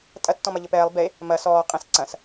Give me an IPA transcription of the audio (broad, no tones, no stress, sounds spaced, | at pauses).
tʼ ɐ tː ɔ̃ m ɐ ʎ ɘ p ɛː lˠ b e | m ɐ s ɔː qʼ ɛ̃ s ǀ ɐ̃ s